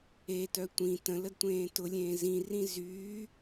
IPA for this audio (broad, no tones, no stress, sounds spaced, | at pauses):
e t œ tʷ ĩ t ə̃ l ə d tʷ ẽː t ʊ lʲ ẽː z ĩ r ĩ z yː